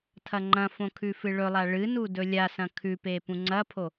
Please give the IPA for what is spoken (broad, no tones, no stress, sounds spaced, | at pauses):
tʰ ɐ ŋ͡ǃ ɐ̃ f õ kʰ ʉ f ɨ ɭ ɵ lˠ a ɭ ɨ n u d ɵ lʲ a s ɐ̃ kʰ ʉ p e p ũ ŋ͡ǀ ɐ pʰ o